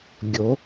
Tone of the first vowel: rising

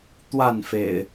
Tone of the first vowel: falling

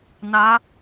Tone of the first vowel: rising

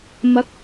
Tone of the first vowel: rising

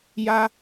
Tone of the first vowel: high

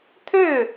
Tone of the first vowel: falling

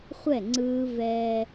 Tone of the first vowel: falling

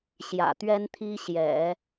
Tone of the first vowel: low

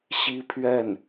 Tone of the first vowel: high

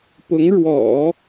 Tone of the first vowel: rising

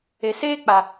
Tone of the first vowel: low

